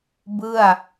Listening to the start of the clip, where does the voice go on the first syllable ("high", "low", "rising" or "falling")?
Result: falling